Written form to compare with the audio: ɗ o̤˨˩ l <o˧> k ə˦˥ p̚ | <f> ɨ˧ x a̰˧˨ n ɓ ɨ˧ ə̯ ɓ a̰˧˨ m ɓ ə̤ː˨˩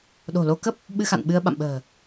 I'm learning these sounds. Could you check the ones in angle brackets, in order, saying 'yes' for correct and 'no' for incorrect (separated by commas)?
yes, no